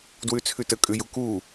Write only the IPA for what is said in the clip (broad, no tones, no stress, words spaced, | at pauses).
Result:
dwʉt͡sʰʉtə kʼʉjuku